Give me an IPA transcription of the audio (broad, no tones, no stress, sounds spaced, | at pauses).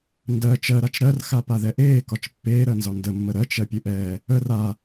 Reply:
n d ɜ t͡ʃ ɜ ɾ a t͡ʃ ɾ ɜ r x a p a ð ɛ ʔ eː k ɒ t͡ʃ pː eː ɾ ɜ n z ɒ n d ə mː ə ɾ ɜ t͡ʃ ɜ pʲ ɨ ʔ ɛː | ə r a